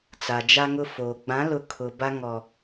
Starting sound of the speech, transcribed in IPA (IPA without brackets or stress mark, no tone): t͡s